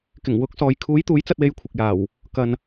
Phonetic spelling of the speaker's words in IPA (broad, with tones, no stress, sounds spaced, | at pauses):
k ɪ˨˩ ŋ w ʊ˨˥ k̚ s ɔː˨ j kʰ uː˨˥ j t̪ uː˨˥ j t͡s ɐ˧ t̚ w e˧ j kʷʰ ɪ˨ k̚ j aː˨˩ w | k ɐ˨ n